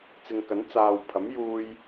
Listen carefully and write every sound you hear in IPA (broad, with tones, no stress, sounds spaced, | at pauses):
t͡s ɪ˨ ŋ k ɐ˨˥ n t͡s aː˨ w pʰ ɐ˨˥ m j uː˧ j